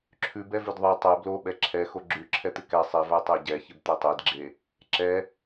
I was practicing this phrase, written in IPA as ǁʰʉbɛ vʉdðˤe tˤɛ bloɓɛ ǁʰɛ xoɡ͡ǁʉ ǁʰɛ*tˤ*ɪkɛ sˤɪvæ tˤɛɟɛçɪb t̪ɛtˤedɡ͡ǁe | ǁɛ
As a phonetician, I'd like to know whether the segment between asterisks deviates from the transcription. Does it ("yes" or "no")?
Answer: yes